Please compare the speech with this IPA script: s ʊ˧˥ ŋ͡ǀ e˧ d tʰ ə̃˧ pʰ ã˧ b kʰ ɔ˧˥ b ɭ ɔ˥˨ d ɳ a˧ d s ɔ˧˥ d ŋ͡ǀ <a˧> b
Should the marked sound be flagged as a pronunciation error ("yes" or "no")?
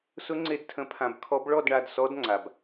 no